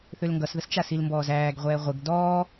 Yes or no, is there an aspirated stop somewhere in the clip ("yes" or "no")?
no